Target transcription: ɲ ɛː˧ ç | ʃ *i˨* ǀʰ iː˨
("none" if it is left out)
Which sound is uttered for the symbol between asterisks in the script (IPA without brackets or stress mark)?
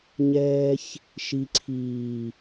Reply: i˨